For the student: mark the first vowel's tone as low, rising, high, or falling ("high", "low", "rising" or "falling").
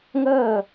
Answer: falling